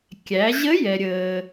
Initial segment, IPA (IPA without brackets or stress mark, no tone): kʲ